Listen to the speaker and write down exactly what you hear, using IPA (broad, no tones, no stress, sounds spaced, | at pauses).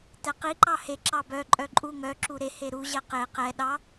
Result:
t ɛ q i ǃ ɑ h e ǁ ɑ b œ ǃʼ œ ǃʼ u ŋ œ ǁ u ɾ e h e ɾ u ʑ ɛ q e q ɛ ɗ ɑ